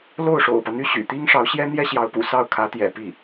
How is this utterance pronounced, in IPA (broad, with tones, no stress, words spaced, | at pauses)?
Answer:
lo˥˩ʊ̯ʂo̰˨˩ʊ̯pä˦n̪y˥ ɕy̰˨˩t̪i˥ŋʂɑ˧˥ʊ̯ɕjɛ˥ n̪jɛ˥ɕjɑ˧˥ʊ̯pṵ˨˩sɑ˥˩ʊ̯ kʰä˧˥t̪jɛ̰˨˩ pi˥˩